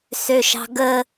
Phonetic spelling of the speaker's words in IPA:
s ø ʃ ɑ̤ ɡ ə

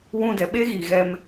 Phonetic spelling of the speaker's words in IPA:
w ũ˧ d ɛ˨ ɓ e˦ ɣ iː˨ ɣ ɛ˧ m

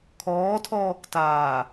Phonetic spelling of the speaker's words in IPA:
kʰ ɔː tʰ ɔː k t aː

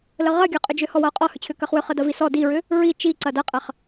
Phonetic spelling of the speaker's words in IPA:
l ə ʁ ɐ ɡʲ ɤ qʼ ʏ d͡ʒ ʏ h ɔ w ɤ ʊ̯ qʼ ɔ h ʏ t͡ɕʰ ʏ k ɐ χ w ʏ χ ə d ɐ v i s ɔ d i ɹ ʏ | ɹ i t͡ʃ i ǀ ɐ d ɐ qʼ ɐ χ

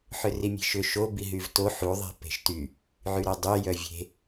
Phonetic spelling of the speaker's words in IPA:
ħ ʏ r i mʲ e̤ ʃ ʏ ʃ o b i ɦ y v t o ħ u ðˤ e̤ p e̤ ʃ t y | ʕ y ɾ œ dˤ y j œ vʲ e̤

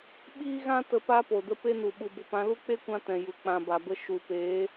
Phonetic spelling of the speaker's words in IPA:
ɓ iː˦ ɣ ã˦ t ə˧ p a˦ p o˨ d ə˦ p e˦ n u˨ ɓ u˨ b o˨ p ã˧ l u˦ k͡p e˦ kʷ ã˧ t ɛ̃˨ j u˨ k͡p ã˨ b a˨ b ə˧ ʃ u˨ p eː˨˦

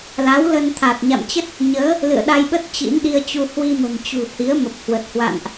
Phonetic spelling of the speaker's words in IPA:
l a˨˦ w l ə˧ n t̪ʰ a˨˩ t̚ ɲ a̰˧˨ m t͡ɕ ə˦˥ t̚ | ɲ əː˨˦ | l ɨ̰˧˨ ə̯ ɗ a˧ j ɓ ə˦˥ t̚ t͡ɕ ḭ˧˥ n ɗ i˧ ə̯ t͡ɕ u˧ h w i˧ m ə̤˨˩ m t͡ɕ ṳ˨˩ h i˨˦ ə̯ m ə˨˩ p̚ h w ə˨˩ t̚ h w a̰˧˨ n ʔ

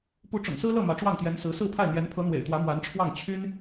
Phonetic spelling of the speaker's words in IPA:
p u˧˥ ʈ͡ʂ ʊ̰˨˩ ŋ s ɹ̩˥ l ɤ˥˩ m ä˧˥ ʈ͡ʂ w ɑ˥˩ ŋ t̪ j ɛ˧˥ n s ɹ̩˧˥ s ɹ̩˥˧ pʰ a˥˩ ɪ̯ n̪ j ɛ˧˥ n pʰ ɤ˧˥ n̪ w ḛ˨˩ ɪ̯ t̪ w ä˧˥ m w a˧˥ n ʈ͡ʂʰ w ɑ˥˩ ŋ t͡ɕʰ y˥ n

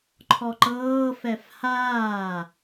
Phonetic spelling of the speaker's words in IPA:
ǃʰ ɔ ǃ ɤː f ɛ f h aː

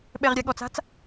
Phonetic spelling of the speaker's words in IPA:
ɓ ɛ ʁ ɾʲ a ɠ ɔ t͡s a̤ t͡s

